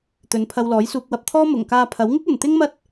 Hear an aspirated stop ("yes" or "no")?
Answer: yes